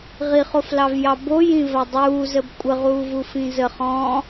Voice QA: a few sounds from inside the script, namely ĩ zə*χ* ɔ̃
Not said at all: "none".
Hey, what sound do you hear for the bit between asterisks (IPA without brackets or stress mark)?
χ